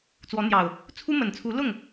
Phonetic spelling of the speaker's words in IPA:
t͡s w ɔ˨˦ n̪ j ɑ˨˩ ʊ̯ | t͡sʰ u˦ m ə˨˩ n t͡sʰ u˨˦ l ʊ˥˨ ŋ

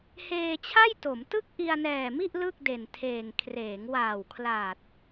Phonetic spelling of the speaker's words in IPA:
h eː˧ t͡ɕʰ a˥˩ j t o˩˦ m t ɯ˥˩ k̚ ʔ i˧ a̯ n ɛː˨˩ m i˥˩ ʔ l ɯ˥˩ k̚ d e˨˩ n tʰ eː˨˩ ŋ kʰ r eː˩˦ ŋ w aː˨˩ w kʰ l aː˨˩ t̚

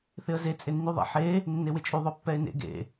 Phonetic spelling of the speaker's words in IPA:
θ ɪ ə̯ z e t͡sʼ ɪ nː y ðˤ ḛ ħ e | nː e w ɪ t͡ʃʼ y ðˤ ʊ pː ɛ ɪ̯ n ḛ ɡ ḛ

